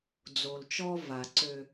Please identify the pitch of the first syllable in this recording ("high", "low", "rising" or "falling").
low